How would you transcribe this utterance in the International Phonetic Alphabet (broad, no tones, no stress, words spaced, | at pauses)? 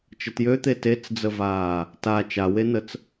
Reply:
t͡ʃətjøt̪e tet͡sd͡zəvaː | ta t͡ʃawenət͡s